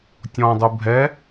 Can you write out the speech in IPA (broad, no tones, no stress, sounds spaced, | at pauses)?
tʲ ɔ̃ dˤ u bʱ ɛ